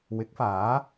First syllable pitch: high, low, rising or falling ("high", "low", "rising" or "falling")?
rising